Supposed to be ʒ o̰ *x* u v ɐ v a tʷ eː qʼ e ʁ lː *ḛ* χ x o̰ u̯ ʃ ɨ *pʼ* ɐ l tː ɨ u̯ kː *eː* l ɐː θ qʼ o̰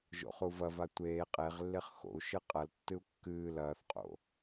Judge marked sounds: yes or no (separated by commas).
no, no, no, no